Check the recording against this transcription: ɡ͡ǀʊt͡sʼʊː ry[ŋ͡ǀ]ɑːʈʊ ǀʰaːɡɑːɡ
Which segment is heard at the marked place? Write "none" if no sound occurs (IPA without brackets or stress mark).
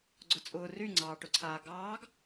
ŋ͡ǀ